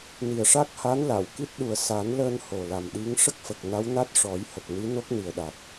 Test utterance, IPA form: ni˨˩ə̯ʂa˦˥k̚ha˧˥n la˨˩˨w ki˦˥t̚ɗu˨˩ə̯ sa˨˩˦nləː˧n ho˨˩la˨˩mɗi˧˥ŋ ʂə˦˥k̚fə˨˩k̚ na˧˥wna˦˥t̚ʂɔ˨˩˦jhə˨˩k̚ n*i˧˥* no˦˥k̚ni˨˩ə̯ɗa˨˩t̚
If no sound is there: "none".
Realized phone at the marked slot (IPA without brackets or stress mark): i˧˥